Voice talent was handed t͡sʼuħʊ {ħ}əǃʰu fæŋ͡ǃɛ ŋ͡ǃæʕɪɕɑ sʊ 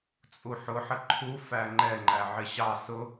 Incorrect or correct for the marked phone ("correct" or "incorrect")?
correct